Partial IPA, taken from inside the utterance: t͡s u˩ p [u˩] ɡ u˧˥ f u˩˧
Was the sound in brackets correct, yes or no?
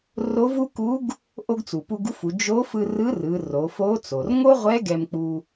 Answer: no